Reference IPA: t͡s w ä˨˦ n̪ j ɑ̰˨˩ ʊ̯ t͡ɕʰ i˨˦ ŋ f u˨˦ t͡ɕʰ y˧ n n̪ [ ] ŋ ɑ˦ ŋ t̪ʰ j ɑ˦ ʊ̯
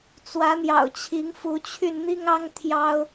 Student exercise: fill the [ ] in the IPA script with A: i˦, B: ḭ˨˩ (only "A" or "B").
A